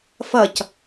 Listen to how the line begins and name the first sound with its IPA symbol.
f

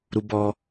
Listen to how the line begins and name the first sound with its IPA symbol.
ɾ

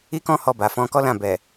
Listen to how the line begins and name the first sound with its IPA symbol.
i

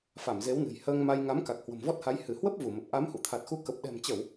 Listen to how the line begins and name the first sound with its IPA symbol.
f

